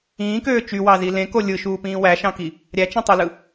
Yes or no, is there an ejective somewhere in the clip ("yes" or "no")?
no